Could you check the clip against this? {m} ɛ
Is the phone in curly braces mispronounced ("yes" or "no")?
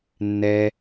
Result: yes